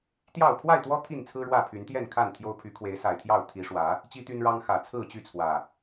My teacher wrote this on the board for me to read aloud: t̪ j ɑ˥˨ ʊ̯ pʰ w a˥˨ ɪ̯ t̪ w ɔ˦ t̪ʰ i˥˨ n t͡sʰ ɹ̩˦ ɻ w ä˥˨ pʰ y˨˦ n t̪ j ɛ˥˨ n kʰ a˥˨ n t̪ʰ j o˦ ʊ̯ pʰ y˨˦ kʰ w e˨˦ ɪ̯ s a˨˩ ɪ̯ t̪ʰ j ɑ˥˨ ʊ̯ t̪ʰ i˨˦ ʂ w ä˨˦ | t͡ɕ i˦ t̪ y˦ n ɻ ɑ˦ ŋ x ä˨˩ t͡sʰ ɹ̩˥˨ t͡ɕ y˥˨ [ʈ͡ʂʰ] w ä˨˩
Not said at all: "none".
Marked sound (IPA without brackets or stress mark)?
t͡sʰ